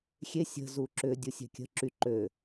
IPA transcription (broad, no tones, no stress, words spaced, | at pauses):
xʲe sʲə̤ zuǁʏ dʲusʲɛ̤kʲə̤ ǁy ǃø